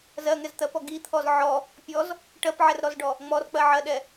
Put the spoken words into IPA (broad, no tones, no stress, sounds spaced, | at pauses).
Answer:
z ɜ ŋ ɛ z t̪ ɜ p ɔ ɡ i t̪ʰ ɔ z ʕ ɔ | pʲ ɔ z | ʈ ɜ p ʕ ɛ r ɾ ɔ z ɖ ɔ | ŋ͡m ɔ r k͡p ɜ ʕ ɜ ɗ ɛ